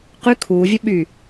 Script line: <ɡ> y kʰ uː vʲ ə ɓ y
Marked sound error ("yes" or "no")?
yes